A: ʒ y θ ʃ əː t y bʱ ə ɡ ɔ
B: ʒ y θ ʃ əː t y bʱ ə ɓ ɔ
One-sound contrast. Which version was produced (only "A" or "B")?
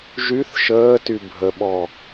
B